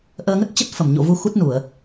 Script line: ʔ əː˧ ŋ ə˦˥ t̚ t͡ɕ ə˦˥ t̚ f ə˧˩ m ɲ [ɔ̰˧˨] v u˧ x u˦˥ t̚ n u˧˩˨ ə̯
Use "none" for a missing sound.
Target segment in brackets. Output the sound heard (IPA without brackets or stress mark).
o̰˧˨